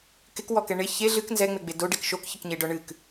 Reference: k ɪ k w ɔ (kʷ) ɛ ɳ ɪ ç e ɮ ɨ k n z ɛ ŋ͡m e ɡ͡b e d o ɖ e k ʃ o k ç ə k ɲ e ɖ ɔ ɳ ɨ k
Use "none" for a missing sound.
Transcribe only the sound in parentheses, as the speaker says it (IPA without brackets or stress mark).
k